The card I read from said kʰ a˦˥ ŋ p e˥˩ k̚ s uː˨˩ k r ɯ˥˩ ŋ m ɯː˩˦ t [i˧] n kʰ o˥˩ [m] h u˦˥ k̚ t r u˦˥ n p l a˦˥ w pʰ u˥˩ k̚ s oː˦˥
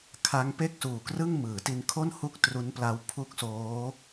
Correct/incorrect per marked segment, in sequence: correct, incorrect: n

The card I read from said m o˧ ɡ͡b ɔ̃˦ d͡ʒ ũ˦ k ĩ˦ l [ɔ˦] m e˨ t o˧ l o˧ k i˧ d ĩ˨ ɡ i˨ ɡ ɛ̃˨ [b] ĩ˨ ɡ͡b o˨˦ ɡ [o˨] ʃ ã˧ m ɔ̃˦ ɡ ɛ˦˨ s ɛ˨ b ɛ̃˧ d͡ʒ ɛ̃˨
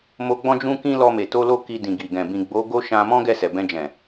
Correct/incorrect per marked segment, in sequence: incorrect: ɔ˧, correct, incorrect: o˦

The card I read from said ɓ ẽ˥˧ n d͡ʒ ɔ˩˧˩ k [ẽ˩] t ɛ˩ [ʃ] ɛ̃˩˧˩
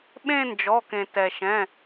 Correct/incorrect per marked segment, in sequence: correct, correct

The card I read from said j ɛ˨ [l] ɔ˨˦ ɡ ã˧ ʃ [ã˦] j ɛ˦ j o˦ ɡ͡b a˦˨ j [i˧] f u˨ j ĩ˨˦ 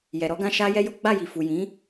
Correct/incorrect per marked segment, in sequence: incorrect: ɾ, incorrect: a˦, incorrect: i˨

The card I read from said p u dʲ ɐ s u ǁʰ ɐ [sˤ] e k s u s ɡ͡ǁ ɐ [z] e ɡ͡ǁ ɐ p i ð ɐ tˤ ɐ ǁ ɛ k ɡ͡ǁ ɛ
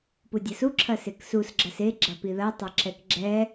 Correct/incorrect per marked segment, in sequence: incorrect: s, incorrect: s

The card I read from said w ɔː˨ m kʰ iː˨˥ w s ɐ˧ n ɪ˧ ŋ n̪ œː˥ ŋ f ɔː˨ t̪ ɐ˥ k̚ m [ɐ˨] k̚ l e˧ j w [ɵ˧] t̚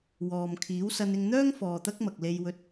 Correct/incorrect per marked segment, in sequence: correct, correct

